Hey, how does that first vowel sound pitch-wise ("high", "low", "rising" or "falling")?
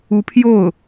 rising